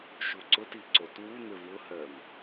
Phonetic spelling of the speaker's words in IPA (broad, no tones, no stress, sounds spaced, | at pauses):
ʃ u ǀ ʊ t i ǀ o t w u n̪ ʏ v ʊ h ɜ m